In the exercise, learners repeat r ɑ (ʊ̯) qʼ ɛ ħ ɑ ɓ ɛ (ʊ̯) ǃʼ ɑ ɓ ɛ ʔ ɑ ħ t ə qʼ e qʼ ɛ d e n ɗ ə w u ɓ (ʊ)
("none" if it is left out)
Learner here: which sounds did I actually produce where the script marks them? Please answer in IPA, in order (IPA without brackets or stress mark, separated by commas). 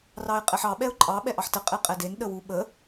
ɪ̯, ʊ̯, ə